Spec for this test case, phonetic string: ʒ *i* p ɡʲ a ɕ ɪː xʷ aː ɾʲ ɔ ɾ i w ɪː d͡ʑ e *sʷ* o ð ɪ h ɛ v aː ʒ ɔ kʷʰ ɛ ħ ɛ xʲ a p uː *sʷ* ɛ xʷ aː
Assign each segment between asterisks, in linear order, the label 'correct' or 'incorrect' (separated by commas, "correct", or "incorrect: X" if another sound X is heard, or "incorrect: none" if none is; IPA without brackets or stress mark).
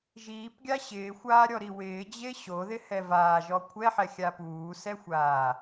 incorrect: iː, incorrect: ɕ, incorrect: s